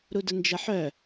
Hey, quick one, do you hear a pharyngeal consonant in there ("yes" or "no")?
yes